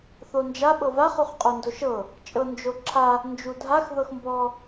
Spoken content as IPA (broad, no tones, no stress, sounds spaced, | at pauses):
θ o n d͡ʒ a ɓ ɤ v a χ u χ qʼ o n d o ʃ ɤ | t͡ʃʼ ɤ n d͡ʒ o ǁʰ a | n d͡ʒ u dʱ a x ð ɤ x m b ɔ